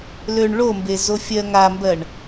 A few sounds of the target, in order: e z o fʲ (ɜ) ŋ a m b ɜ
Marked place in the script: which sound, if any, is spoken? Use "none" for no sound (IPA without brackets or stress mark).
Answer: ɜ